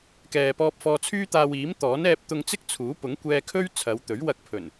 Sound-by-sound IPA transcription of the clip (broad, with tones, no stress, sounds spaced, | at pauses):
k ɛː˨ p ɔː˧ p̚ f ɔː˧ t͡sʰ yː˥ t̪ aː˧ w iː˨˥ m t̪ ɔː˨˥ n ɛː˧ p̚ t̪ ʊ˧ ŋ t͡s ɪ˥ k̚ t͡sʰ uː˨˥ p ʊ˨˥ ŋ kʷ ɛː˧ kʰ ɵ˥ ɥ t͡sʰ ɐ˨˧ w t̪ ɵ˨˥ ɥ w ɐ˧ k̚ pʰ ɵ˨˩ n